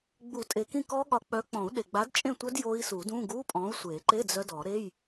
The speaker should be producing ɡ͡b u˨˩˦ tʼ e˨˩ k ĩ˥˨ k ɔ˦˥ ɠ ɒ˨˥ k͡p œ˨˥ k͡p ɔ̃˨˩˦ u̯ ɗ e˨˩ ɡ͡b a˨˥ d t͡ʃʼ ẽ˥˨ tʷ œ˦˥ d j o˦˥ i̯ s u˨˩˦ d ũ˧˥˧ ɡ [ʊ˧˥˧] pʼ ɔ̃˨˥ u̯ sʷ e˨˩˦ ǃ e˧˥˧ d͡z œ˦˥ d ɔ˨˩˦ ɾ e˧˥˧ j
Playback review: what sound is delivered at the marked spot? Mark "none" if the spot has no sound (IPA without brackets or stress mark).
u˧˥˧